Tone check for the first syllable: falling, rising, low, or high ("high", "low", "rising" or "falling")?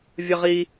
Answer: high